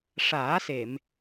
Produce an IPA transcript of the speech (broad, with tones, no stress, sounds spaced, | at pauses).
ʂ aː˨˩˦ s e˨˩˨ m